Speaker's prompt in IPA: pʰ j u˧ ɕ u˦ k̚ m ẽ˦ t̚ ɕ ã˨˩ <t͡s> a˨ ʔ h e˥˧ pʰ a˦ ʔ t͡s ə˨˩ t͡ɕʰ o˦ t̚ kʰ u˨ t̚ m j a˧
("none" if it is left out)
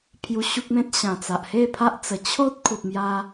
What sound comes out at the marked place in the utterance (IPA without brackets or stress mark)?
t͡s